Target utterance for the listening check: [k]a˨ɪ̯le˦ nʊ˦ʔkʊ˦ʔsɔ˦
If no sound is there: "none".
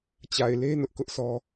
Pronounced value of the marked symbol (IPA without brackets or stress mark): t͡ɕ